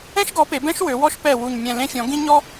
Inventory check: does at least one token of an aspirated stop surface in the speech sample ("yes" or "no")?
no